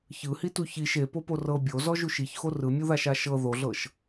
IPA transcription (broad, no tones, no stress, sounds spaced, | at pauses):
ç ɯ h i t u ç i ʃ e p o p o r ɤ bʲ o z ɔ ʒ u ʃ i ç x o r ɯ mʲ u ð a ʃ a ʃ ɤ ð o ɮ ɤ ʃ